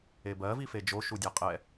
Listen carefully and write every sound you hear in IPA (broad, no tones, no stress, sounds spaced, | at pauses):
e b ɜ v i f e d͡ʒ o ʃ u dʲ a qʼ ɛ